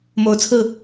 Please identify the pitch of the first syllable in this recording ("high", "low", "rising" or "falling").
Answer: rising